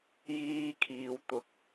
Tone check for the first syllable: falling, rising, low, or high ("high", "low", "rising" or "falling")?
high